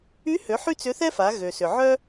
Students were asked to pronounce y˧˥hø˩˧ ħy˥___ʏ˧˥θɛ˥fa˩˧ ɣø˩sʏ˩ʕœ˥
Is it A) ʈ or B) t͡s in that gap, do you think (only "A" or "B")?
B